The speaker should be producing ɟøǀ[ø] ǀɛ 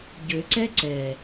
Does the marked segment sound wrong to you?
yes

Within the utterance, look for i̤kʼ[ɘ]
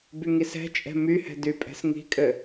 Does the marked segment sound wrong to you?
no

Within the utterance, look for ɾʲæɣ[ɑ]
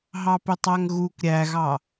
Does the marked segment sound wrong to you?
no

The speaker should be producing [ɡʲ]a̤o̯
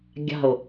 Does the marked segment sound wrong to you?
no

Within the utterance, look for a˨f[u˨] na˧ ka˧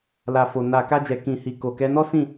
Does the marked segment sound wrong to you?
yes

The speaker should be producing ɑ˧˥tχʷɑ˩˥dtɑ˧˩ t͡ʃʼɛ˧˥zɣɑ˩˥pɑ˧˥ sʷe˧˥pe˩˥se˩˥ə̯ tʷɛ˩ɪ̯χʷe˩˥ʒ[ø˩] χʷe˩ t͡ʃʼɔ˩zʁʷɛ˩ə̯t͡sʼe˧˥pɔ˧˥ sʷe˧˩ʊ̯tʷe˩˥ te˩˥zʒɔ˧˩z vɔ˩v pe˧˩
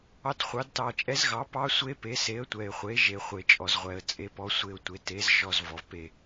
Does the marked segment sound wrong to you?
yes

